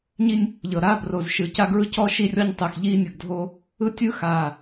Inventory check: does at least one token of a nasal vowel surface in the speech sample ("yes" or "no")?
no